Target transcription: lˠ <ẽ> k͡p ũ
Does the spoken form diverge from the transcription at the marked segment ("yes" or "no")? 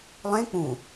no